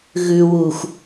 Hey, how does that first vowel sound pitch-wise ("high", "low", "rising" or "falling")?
low